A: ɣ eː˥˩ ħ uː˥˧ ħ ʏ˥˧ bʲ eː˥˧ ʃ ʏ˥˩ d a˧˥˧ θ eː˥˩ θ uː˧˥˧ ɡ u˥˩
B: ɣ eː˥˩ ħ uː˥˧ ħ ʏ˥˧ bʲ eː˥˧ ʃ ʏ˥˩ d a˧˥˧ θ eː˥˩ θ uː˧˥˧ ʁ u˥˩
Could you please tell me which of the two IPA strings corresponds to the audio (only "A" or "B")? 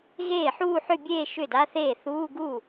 A